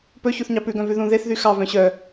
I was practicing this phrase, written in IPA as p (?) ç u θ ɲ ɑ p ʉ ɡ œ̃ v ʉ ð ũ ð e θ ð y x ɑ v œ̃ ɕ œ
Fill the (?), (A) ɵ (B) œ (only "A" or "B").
A